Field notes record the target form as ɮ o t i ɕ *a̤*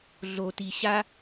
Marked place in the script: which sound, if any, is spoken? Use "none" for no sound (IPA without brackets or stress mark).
a